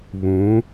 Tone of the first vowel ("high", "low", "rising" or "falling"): rising